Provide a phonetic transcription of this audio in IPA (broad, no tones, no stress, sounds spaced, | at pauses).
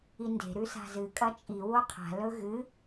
i n d e̤ ɾ ʉ s a̤ z ɨ kʼ ɐ t͡ʃʼ i w o qʰ a̤ l ɵ ɣ ɨ